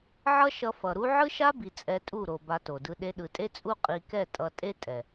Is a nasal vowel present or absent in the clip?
absent